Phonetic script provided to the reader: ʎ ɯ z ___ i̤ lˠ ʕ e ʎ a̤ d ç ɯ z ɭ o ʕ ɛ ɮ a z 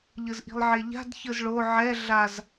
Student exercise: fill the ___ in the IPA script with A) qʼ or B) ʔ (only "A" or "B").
B